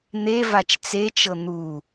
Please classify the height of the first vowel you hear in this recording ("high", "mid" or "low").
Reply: mid